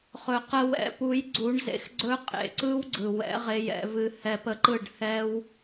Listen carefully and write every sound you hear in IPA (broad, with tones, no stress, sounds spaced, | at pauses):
χ ɵ˨ q ə˧ w ɛ̰˨˦ p u˨˦ j ɡ͡ǀ u˨˦ ɳ z ḛ˦ x ɡ͡ǀ ɵ˦ qʼ ḛ˨ ǀ ɯ˦ w ɡ͡ǀ ɯ˨ w ɛ̰˨˦ ʁ e˧ j ɛ̰˧ v ɨ˧ h ɛ˧ p ə˧ ǃ ɯ˦˨ ɖ h ɛ˦ w